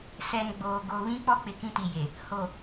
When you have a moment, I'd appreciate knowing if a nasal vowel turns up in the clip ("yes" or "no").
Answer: yes